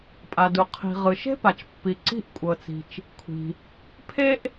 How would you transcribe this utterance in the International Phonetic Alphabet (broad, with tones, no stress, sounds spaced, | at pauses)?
pʼ a˩ d u˩ qʰ i̤˩ ʁ ɯ˩ ʃ e̤˥ p a˩ t͡ʃ pː i˩ ǀ i̤˥ ʔ kʷʼ ɤ˩ t͡s i̤˩ t͡ʃ | kʷʰ i̤˩ | pʰ e˥ ʔ